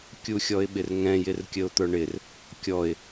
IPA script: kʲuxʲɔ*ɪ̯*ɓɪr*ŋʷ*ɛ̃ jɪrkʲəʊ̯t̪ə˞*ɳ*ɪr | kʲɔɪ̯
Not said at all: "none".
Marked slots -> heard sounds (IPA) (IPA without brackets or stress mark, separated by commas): ɪ̯, ŋ, ɳ